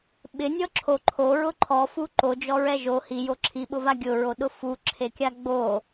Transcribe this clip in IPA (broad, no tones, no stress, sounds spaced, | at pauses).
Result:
ɓ ɪ nʲ ɔ ǁʰ o ǃʰ o ɹ ʊ ǃʰ ɔ f u ǃ o d͡ʒ ɔ ɹ ɛ ʒ o h i j o ǁʰ i ɓ ʊ v a ɡʲ ʊ ɹ o ɗ ʊ f u ǁʰ e kʲ a ɡ͡b o